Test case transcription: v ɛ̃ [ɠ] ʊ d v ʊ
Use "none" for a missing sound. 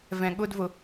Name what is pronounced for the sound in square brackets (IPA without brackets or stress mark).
ɠ